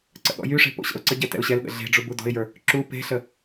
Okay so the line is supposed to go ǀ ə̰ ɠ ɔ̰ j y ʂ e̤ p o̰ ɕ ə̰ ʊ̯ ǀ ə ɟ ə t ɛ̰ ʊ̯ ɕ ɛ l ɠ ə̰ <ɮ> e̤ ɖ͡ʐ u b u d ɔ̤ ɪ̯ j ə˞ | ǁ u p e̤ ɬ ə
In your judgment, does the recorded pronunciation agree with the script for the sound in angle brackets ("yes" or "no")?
yes